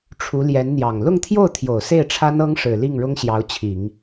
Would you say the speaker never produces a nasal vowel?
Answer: yes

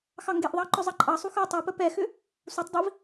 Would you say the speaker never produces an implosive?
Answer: yes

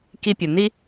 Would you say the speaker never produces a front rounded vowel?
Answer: yes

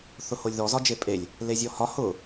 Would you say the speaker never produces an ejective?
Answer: no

